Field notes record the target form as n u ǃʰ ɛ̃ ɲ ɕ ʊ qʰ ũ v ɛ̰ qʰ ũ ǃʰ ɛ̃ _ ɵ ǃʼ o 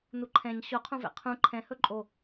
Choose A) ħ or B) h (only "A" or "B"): B